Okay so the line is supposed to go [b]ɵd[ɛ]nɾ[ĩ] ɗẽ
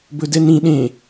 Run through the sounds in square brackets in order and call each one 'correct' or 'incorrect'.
correct, correct, correct

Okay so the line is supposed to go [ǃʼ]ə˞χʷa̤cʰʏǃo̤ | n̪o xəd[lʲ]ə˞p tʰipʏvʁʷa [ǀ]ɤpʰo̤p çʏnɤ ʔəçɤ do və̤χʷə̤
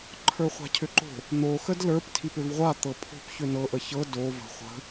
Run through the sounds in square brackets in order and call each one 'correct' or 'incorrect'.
incorrect: ǃʰ, incorrect: l, incorrect: t̪

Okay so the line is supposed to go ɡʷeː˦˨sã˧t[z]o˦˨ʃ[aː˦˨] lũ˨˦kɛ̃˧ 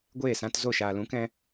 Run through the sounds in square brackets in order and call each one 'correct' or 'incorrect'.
correct, incorrect: aː˨

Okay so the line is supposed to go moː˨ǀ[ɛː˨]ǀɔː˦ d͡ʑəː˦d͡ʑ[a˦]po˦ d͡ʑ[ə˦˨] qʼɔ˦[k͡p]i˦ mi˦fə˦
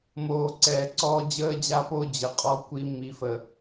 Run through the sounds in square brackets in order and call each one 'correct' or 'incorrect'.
correct, correct, incorrect: ə˨, incorrect: kʷ

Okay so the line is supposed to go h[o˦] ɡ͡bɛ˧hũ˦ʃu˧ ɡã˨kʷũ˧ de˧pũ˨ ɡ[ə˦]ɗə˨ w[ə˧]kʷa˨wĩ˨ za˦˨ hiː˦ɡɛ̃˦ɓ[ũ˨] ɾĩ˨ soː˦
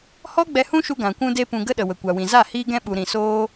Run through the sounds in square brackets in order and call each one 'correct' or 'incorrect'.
incorrect: ɔ˦, correct, incorrect: ə˨, incorrect: u˨

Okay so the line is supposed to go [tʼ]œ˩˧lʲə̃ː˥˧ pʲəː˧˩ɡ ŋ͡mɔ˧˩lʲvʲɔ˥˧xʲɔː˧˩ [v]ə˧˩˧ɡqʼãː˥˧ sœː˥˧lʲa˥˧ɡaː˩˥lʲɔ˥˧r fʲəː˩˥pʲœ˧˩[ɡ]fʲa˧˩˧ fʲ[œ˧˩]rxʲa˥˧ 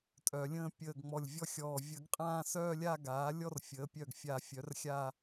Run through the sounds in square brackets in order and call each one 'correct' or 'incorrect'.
correct, incorrect: vʲ, correct, incorrect: œ˩˥

